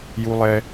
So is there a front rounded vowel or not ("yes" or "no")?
no